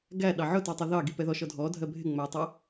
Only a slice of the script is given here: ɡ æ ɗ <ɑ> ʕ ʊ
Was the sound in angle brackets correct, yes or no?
yes